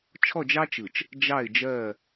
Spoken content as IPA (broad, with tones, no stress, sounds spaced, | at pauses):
t͡ʃʰ ɔ˦˨ d͡ʒ ɑ˦ t͡ʃ ɯ˨ t͡ʃ | d͡ʒ ɑ˦˨ ɪ̯ d͡ʒ ɜ˦˨